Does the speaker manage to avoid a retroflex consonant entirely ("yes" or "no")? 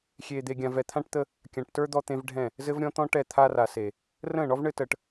no